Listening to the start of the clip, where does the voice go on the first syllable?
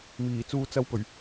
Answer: low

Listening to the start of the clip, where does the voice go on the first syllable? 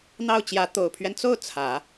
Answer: falling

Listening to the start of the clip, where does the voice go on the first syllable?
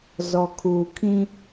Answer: low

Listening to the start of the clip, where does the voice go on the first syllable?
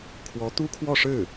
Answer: rising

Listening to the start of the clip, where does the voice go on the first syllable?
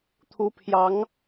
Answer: rising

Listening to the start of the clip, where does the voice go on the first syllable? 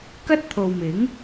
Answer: high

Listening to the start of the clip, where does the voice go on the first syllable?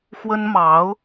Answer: high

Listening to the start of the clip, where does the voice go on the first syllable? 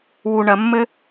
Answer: low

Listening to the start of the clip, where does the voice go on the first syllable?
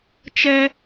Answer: high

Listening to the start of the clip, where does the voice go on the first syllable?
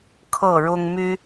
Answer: falling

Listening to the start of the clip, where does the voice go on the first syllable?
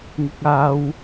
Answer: high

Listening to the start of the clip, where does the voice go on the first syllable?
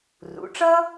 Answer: rising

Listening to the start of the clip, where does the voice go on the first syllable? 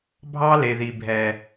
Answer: high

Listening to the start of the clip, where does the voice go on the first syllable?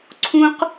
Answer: high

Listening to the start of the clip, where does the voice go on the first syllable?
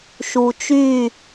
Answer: low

